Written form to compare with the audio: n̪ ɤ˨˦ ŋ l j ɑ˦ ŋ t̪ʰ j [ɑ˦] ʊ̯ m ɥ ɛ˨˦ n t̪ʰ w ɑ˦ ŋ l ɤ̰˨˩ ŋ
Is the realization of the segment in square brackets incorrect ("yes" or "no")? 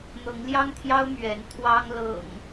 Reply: no